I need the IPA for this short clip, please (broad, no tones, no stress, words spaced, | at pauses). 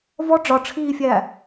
vɔ ɖ͡ʐɒʈ͡ʂʰiːfʲæ